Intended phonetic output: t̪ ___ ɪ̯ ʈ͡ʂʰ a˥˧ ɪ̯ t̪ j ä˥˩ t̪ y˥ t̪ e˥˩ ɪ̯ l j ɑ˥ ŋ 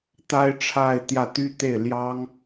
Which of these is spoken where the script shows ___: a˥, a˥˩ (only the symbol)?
a˥